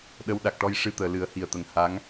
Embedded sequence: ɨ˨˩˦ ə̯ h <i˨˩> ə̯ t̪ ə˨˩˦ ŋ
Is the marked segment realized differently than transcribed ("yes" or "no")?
no